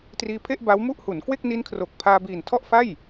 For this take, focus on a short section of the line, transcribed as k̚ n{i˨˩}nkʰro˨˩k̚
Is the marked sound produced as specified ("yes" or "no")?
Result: no